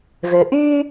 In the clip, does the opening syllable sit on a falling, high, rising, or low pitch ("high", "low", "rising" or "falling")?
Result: low